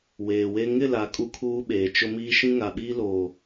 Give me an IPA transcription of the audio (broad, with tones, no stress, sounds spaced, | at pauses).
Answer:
w eː˨ w e˦ ŋ ɪ˦˨ l a˨ kʼ u˦ kʰ uː˦ ɓ eː˨ t͡ʃ ʊ˦ m iː˦ ʃ ĩ˦ ŋ a˨ ɓ iː˦ l oː˨